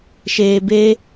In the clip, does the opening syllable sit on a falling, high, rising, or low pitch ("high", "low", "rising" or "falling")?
low